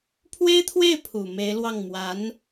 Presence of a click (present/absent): absent